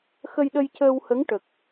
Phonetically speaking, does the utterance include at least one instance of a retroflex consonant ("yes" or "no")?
yes